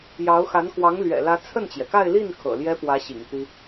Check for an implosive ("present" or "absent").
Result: absent